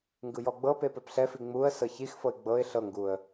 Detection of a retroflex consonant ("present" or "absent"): absent